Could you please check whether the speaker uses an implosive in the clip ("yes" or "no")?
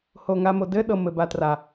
yes